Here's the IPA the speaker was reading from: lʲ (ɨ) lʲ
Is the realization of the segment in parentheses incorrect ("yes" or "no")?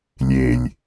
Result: yes